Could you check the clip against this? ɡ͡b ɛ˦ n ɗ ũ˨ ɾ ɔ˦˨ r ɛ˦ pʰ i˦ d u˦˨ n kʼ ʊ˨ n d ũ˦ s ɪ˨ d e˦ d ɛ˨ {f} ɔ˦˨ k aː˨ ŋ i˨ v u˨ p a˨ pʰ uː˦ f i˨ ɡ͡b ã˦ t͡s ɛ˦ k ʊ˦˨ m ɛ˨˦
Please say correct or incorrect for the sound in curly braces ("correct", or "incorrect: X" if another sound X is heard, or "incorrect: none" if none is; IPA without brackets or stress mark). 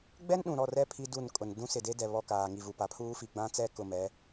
incorrect: β